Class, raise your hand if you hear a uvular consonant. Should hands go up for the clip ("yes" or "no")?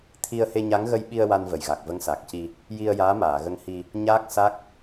no